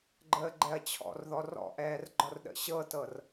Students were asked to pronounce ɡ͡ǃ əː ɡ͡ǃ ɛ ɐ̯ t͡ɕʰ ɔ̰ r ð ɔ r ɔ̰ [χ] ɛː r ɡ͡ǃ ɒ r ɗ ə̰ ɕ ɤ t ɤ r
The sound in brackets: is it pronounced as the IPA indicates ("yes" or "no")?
no